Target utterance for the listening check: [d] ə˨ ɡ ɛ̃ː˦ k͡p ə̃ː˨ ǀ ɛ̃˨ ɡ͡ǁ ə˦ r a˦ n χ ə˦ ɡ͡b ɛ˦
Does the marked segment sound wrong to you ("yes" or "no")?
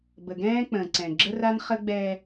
yes